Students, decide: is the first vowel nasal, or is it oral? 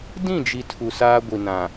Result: nasal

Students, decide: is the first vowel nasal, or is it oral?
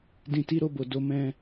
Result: nasal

